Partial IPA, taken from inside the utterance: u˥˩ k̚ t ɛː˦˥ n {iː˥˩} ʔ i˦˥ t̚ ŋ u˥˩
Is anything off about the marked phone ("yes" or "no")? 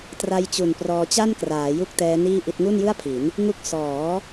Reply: no